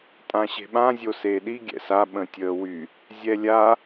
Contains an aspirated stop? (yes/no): no